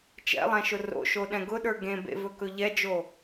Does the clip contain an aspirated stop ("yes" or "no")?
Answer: no